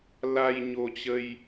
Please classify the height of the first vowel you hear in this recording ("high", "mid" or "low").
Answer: low